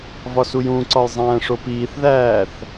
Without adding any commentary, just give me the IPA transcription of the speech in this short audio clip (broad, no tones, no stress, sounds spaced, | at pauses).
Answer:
v ɒ s u j ũ ǀ ɒ j zˤ æ̃ː ʂ o p iː θ ð æː θ